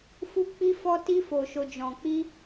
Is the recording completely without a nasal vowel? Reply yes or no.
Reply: no